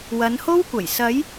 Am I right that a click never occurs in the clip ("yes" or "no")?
yes